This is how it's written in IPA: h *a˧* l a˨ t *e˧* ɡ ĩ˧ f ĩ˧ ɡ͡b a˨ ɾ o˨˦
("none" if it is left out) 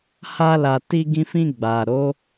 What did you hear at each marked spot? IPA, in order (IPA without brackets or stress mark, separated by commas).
a˧, i˧